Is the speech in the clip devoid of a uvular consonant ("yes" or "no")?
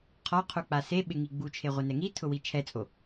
no